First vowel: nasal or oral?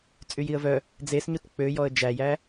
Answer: oral